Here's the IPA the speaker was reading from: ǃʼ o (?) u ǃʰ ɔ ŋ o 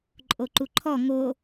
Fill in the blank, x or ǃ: ǃ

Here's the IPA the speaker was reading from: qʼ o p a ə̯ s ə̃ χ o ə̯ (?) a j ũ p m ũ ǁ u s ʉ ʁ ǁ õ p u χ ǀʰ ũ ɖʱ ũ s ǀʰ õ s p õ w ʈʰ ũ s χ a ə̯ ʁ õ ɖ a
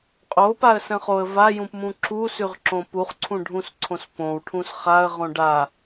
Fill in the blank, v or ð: v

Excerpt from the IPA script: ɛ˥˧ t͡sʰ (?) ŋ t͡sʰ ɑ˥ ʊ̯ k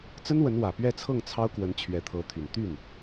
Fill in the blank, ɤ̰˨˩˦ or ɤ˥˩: ɤ˥˩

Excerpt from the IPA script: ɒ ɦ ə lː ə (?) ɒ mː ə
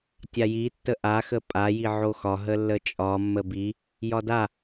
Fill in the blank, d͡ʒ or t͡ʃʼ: t͡ʃʼ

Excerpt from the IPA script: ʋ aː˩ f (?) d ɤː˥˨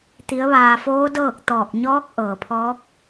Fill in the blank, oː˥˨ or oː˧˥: oː˧˥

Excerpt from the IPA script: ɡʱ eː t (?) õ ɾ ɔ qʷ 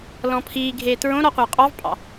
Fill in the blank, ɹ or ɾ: ɹ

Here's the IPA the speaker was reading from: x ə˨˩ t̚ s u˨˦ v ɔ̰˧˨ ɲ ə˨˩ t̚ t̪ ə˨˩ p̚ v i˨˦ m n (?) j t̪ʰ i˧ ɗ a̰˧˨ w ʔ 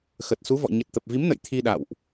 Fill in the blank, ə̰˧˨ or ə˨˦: ə̰˧˨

